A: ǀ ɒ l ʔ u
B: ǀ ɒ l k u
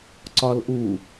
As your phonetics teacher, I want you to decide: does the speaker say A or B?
A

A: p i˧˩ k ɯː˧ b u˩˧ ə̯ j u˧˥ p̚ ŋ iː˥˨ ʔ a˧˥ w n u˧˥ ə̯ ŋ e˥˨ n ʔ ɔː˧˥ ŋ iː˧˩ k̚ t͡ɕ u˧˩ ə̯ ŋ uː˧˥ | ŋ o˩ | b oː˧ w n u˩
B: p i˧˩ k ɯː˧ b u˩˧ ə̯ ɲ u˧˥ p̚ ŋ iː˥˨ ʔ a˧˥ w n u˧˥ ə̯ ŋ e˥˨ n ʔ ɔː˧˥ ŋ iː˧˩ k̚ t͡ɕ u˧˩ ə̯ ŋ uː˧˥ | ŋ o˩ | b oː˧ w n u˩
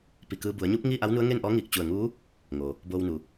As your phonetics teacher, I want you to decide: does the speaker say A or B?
B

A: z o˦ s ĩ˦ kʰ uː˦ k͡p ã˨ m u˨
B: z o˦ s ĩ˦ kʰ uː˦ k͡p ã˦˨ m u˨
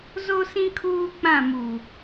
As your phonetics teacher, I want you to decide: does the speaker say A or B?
B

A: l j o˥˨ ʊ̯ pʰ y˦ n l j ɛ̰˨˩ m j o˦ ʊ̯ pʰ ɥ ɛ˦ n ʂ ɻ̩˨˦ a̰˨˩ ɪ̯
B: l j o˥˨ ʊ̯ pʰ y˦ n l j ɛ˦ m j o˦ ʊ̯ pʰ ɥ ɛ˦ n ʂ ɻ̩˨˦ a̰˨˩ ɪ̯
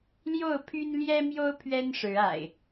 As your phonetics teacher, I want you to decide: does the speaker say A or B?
B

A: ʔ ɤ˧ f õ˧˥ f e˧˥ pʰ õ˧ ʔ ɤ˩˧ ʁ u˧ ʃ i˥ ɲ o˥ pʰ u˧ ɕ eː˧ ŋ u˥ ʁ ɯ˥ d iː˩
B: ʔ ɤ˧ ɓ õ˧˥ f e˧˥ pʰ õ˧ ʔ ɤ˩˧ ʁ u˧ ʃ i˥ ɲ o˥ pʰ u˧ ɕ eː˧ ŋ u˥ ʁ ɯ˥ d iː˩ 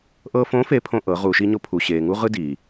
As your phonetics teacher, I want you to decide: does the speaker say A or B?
A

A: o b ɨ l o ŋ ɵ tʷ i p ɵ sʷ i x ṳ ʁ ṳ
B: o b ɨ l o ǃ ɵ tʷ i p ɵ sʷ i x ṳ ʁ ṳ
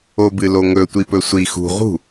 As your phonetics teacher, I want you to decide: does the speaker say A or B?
A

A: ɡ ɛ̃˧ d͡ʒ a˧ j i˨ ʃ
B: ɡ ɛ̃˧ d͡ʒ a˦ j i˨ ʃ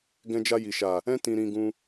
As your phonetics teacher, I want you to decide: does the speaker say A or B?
A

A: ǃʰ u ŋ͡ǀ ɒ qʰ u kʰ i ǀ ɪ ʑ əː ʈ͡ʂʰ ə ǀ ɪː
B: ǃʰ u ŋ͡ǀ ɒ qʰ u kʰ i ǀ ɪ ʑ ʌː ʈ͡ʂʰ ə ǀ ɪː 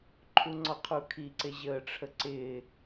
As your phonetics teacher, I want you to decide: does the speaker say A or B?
A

